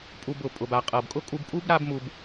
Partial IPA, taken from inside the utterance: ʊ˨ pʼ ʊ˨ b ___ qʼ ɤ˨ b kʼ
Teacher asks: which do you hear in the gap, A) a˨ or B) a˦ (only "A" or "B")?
A